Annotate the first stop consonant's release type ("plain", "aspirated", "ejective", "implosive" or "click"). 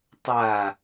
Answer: plain